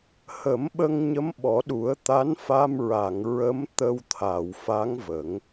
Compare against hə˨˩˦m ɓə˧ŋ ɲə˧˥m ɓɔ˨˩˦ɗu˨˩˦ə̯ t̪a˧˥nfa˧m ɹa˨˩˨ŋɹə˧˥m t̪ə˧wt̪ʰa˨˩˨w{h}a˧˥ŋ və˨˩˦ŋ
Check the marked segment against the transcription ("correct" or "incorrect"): incorrect